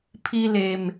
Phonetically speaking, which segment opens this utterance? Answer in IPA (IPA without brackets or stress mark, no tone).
pʰ